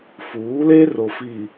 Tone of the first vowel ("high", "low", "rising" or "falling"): rising